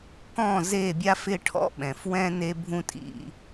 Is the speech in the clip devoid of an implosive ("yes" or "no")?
no